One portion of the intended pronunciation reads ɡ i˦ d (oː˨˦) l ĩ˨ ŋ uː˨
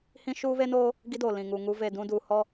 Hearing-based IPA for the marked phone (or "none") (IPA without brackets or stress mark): oː˨